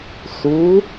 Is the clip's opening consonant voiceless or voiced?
voiceless